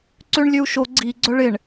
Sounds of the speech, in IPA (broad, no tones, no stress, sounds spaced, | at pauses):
ǀ ø ɳ lʲ ø u̯ ʃ o ɡ͡ǀ i ɡ͡ǀ œ ɭ ɪ ɳ